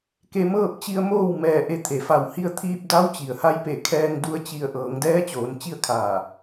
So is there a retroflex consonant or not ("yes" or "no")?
no